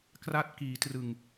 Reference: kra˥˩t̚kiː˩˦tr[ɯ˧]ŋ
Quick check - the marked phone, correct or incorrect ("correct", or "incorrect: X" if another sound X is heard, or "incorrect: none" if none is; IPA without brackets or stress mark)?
incorrect: ɯ˨˩